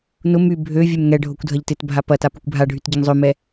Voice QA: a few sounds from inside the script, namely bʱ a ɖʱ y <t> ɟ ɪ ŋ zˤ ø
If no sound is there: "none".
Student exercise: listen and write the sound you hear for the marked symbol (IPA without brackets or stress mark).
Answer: t